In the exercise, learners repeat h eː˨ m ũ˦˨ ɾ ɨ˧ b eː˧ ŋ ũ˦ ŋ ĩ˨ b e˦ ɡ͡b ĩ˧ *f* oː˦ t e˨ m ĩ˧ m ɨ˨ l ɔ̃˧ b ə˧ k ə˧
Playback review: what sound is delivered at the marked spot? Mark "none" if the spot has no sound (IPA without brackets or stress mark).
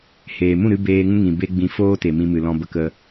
f